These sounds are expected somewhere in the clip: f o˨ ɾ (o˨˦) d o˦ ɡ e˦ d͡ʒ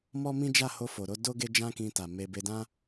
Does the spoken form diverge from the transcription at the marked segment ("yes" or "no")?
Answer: no